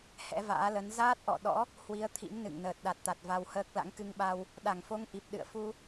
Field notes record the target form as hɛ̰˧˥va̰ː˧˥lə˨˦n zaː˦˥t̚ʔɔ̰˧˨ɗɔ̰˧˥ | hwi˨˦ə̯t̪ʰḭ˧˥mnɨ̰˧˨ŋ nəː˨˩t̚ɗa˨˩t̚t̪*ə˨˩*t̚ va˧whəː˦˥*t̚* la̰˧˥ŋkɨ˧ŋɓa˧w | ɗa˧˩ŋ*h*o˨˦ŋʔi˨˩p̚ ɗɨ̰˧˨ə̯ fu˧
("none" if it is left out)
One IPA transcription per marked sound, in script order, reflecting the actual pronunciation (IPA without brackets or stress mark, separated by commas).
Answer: a˨˩, k̚, f